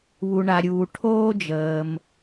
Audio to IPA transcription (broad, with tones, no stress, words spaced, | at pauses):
βu˩ɳa˩ɾʲuː˩ ʈʰoː˥d͡ʒəː˩m